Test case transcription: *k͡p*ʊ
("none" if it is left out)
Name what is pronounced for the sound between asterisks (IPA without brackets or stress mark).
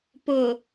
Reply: p